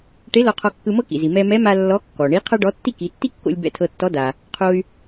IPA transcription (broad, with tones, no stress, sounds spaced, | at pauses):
ʈ e˧˥ l ɔ˧ qʰ ɔ˧ kː ɯ˧ m ɤ˥ k ḭ˩ z i˩ m ɛ˧ m ɛ˧˥ m a˧ lː ɔ˧˥ kː ɔ˩ ɳ i˧˥ qʰ a˥ ɖ ɔ˧˥ tː i˥ k i˩˧ tː i˥ kː o̰˧ lʲ b ɛ̰˧ tʰ ɤ˧ tː ɔ˧˥ d a˩ | qʰ o˧ y̯